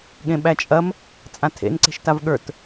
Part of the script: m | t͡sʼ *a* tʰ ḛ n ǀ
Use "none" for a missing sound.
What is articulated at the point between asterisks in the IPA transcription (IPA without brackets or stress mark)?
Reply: ã